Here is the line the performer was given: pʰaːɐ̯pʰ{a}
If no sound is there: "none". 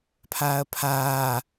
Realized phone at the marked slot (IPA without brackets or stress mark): aː